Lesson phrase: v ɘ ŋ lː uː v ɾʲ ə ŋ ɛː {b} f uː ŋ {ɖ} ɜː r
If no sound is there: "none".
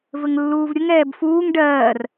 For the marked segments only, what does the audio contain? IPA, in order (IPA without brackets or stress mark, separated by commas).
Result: b, ɖ